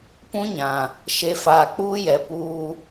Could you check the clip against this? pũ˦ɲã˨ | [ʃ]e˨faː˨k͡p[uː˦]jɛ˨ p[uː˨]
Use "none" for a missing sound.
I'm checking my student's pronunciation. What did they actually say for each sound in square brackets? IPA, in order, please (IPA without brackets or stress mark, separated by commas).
ʃ, uː˦, uː˦